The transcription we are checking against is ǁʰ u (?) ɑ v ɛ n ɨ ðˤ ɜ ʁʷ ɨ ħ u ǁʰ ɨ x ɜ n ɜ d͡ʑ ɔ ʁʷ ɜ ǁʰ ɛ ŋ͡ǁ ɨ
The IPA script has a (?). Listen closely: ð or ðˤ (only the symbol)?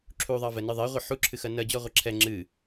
ðˤ